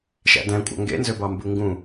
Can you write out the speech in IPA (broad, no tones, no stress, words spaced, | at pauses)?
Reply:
ʃæ̰dæ̃ kʷʼɑ̰ŋɡḛnzøbɑ mbɯŋɡũ